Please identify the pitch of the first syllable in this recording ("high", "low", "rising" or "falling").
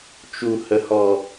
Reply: low